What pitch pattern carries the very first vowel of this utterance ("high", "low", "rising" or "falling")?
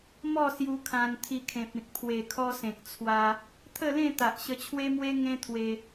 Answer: falling